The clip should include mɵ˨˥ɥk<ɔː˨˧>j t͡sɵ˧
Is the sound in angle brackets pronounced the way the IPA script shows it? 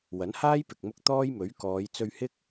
yes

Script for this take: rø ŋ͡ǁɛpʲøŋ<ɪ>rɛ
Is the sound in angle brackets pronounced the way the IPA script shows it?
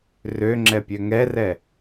no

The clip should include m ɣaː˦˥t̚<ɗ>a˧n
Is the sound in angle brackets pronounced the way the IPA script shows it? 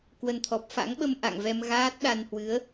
yes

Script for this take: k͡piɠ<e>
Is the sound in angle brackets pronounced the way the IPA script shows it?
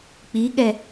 no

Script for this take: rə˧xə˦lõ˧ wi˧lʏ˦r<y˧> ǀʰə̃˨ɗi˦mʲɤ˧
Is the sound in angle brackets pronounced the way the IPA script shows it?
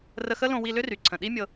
no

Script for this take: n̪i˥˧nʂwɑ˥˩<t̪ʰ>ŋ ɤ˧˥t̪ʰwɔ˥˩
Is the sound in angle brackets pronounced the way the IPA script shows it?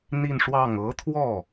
no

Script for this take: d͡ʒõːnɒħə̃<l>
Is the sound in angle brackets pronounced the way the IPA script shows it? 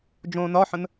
no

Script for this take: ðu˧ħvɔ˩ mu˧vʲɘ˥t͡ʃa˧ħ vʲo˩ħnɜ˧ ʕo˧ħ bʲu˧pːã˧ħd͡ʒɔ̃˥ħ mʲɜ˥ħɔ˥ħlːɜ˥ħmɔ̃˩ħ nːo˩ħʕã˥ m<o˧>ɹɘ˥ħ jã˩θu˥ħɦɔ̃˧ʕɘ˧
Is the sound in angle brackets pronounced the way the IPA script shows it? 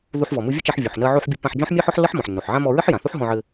no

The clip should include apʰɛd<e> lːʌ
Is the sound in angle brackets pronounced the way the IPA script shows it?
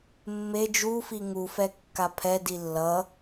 no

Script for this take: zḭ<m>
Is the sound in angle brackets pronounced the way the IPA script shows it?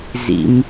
yes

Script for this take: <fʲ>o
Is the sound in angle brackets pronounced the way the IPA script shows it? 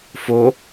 no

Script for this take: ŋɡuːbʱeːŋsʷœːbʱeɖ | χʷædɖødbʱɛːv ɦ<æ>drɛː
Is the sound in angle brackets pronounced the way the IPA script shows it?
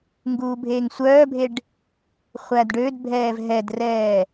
no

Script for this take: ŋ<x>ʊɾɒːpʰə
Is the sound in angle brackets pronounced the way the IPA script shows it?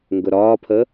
no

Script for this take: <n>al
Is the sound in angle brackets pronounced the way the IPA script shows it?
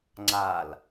no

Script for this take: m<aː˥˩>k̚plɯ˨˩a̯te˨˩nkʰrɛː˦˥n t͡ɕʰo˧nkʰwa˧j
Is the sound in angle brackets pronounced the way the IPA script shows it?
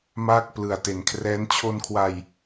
yes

